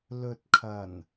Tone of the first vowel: low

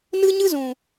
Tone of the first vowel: high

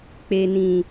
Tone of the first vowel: low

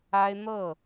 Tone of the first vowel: high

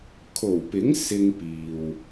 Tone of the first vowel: low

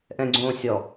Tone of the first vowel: low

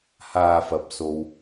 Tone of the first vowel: low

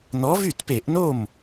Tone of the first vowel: rising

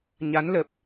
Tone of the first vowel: rising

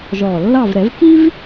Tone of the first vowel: low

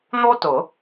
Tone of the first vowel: high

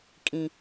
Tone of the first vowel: low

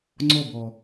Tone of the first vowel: falling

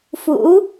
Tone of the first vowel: rising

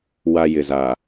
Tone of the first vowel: low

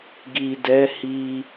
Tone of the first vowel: low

